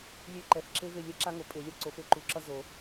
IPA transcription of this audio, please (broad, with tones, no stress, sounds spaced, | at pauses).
lʲ e˦˨ ǃ ɛ˩˥ f ǁ e˦˥ v e˦˨ lʲ ɛ˦˥ ǁ a˦˥ ŋ o˨ pʼ e˨˩˦ lʲ ʌ˨˩˦ ǀ o˨˩˦ f e˨ ǃ u˩˥ ǁ ʌ˦˥ z o˨˩˦